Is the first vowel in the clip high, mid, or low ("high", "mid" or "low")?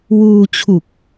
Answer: high